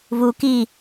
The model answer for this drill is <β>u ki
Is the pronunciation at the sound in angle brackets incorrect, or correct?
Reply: correct